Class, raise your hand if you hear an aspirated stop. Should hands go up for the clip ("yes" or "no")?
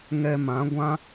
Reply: no